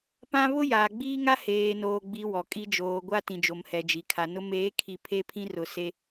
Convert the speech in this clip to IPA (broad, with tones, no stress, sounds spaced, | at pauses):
p ã˦ β ʊ˦ j aː˨ ɡ͡b iː˦ ŋ a˦ h eː˨ n oː˨ ɡ͡b i˨ w ɔ˨ kʼ i˦ d͡ʒ oː˨ ɡʷ a˦ t ĩ˨ d͡ʒ o˨ m h ɛ˨ d͡ʒ i˨ kʰ a˨ n ʊ˦ m eː˨˦ kʰ i˨ pʰ e˦ pʰ ĩ˦ r ʊ˨ s e˦